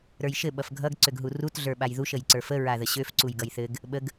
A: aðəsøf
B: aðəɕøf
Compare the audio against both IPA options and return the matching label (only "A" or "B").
B